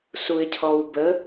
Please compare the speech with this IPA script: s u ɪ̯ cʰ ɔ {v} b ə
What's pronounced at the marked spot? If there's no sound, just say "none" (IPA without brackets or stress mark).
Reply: w